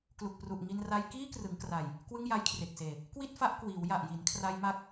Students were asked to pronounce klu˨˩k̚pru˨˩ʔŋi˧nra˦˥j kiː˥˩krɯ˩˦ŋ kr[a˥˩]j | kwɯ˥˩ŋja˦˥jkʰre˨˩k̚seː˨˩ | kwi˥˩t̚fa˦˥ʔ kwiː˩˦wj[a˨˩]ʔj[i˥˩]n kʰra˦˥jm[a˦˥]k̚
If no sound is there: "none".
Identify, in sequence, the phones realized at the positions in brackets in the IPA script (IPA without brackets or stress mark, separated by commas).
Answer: a˨˩, a˨˩, i˩˦, a˦˥